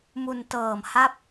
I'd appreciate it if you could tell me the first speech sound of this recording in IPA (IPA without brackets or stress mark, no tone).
m